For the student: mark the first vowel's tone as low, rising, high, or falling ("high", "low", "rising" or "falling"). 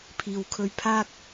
low